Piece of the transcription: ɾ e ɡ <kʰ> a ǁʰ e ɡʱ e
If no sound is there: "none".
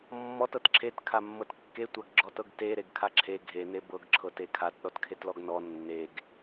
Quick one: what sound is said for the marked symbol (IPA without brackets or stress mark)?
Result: kʰ